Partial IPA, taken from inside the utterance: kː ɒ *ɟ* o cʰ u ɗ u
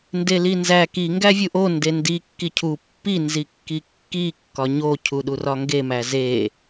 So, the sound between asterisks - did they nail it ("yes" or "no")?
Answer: no